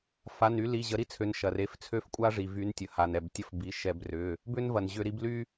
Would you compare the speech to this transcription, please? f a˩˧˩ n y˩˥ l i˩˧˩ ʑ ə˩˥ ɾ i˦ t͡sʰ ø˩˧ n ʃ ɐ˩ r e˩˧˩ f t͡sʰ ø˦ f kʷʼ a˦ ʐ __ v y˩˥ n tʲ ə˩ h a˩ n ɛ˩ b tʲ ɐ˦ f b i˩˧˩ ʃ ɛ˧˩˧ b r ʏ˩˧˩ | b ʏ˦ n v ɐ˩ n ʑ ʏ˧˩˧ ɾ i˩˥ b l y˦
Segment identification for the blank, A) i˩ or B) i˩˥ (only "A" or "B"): A